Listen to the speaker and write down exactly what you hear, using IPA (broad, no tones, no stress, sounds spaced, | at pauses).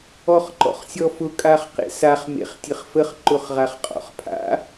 ɔ χ ǃ ɔ̰ χ sʲ ɔ f ʊ kʼ a χ q ḛ s a χ m ḛ χ tʲ ə χ f ə χ ǃ ʊ χ ʁ a χ qʼ ɔ̰ χ pʰ a̰